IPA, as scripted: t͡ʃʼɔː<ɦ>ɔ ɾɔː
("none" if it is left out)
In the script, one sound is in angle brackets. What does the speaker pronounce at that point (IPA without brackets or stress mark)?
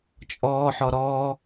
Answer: ħ